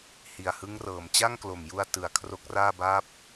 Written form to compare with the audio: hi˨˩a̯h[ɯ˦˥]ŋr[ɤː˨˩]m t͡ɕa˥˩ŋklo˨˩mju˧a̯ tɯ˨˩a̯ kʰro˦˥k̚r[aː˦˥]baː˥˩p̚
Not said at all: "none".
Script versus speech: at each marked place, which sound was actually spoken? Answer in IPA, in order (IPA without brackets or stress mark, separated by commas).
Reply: ɯ˦˥, ɤː˨˩, aː˥˩